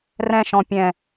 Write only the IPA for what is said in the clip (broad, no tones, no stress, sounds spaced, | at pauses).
r ɛ̃ ʃ ɔ̃ pʲ ɛ̃